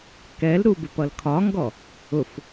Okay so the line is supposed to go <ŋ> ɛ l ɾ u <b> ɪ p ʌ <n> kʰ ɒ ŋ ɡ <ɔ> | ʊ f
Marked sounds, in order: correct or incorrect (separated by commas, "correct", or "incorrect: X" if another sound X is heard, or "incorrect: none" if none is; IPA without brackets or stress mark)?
incorrect: k, correct, incorrect: l, correct